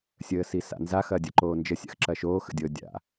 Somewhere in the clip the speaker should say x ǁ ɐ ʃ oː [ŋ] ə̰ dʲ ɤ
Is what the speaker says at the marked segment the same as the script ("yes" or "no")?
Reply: no